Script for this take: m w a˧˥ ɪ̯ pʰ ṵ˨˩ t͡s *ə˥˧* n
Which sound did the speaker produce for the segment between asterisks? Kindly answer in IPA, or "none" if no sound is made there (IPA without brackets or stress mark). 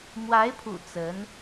ə˧˥